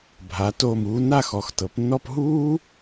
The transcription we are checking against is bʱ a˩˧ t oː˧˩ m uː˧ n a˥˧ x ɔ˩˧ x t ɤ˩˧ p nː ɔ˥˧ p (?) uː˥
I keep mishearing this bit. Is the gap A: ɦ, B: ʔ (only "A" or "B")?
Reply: A